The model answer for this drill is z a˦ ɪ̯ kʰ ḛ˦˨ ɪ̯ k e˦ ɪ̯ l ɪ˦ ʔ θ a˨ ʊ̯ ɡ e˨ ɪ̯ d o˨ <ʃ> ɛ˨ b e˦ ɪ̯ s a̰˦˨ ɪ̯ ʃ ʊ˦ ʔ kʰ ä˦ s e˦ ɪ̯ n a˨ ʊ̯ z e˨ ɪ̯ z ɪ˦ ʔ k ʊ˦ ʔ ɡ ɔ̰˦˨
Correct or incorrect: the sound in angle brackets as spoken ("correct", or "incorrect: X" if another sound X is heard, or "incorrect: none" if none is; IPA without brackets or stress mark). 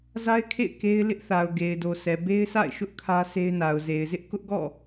incorrect: s